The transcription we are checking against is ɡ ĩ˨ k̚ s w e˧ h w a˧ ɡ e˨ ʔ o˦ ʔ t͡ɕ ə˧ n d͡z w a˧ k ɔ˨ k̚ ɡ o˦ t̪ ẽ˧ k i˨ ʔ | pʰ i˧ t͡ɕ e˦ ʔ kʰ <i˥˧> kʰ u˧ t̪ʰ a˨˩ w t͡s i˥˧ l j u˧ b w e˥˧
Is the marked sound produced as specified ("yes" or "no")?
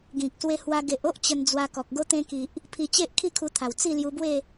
yes